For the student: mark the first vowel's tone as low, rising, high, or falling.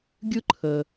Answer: high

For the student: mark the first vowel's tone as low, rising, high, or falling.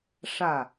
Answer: falling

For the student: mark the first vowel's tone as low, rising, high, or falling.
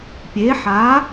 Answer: rising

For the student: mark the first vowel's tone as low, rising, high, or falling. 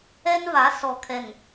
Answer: high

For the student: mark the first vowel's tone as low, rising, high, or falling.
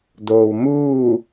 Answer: low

